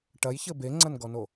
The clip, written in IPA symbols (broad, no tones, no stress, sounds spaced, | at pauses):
ʈ ɐ j ç ɘ b e ŋ͡ǀ ɐ n ɡ ɔ n o